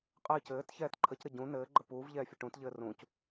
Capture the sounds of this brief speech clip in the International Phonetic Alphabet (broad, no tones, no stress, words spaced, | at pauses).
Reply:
qʼɘːc ɘːt çɛːtǃʰəcɾə ɟũ nɘː ɡ͡ǃəpuːvʎɛː fʲɘʈũtʎɘː rũc